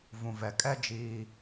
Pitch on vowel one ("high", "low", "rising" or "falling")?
low